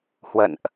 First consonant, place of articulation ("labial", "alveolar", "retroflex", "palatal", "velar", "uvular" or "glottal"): glottal